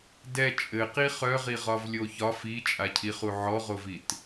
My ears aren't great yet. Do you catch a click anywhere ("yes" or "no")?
no